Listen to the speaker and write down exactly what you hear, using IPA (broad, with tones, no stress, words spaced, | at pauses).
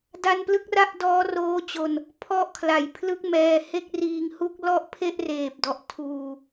da˧nplɯ˦˥k̚ra˦˥ʔ dɔː˦˥roː˦˥ t͡ɕo˧n | pʰɔ˦˥ʔkʰla˩˦jpʰlɯ˦˥k̚mɛː˧ he˥˩k̚riː˧ŋhu˥˩k̚ lɔ˥˩ʔpʰe˥˩ʔreː˨˩p̚dɔ˨˩ʔ tʰuː˧